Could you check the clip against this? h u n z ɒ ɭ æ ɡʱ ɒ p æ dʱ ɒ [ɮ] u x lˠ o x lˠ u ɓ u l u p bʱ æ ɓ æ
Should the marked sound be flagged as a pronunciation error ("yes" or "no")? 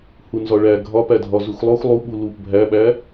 yes